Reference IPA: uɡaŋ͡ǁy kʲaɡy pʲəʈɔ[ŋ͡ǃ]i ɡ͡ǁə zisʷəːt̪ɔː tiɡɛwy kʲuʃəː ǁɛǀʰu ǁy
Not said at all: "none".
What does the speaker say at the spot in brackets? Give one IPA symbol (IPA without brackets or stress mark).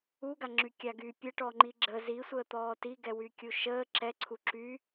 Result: ŋ͡ǃ